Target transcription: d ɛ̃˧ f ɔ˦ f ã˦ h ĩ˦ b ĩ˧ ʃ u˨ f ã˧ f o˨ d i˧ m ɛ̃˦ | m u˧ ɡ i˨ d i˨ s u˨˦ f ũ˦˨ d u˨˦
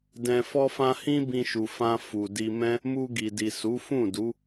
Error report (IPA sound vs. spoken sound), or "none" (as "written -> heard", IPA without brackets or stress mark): o˨ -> u˨